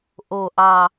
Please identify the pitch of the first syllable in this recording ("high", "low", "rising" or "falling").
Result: low